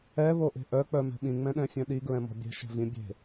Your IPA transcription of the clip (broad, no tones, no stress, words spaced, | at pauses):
ɛ βoʔe̤ʔœ k͡pœmɛ̤ɓĩ ŋ͡mɛ̃ɗɛ̃fʲœ̃ɗi ɡɹɛ̃mɔ̤bʲɛ̤ ʃɛ̤vĩ bʲe̤